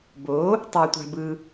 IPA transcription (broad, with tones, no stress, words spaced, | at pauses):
bo˩˥ | tˤɤ˨tʷa̤˨ bɯ˨